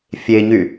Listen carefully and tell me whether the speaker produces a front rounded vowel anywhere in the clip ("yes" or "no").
yes